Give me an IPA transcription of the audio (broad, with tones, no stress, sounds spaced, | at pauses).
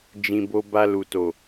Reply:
d͡ʒ ĩ˨ b o˧ b a˧ l u˨ t o˨